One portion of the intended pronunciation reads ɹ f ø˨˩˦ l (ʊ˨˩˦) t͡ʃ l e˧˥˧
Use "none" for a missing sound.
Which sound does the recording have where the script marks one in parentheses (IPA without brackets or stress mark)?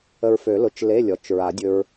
ʊ˨˩˦